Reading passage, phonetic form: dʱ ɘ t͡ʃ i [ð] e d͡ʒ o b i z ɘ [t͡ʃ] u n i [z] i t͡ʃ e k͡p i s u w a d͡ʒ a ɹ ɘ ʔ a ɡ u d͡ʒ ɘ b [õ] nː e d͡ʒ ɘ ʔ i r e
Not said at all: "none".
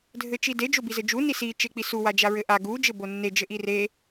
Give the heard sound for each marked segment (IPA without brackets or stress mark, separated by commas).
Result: d, d͡ʒ, s, o